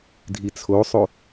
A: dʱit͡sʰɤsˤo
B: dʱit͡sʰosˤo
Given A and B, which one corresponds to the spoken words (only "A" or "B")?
B